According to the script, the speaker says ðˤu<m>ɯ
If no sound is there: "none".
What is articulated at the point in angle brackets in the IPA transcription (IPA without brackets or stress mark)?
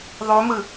m